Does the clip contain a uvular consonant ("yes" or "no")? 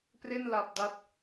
no